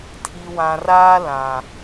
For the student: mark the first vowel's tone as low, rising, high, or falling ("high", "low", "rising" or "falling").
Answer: low